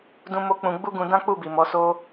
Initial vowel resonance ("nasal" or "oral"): nasal